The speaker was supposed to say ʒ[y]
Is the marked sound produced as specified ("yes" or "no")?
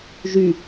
yes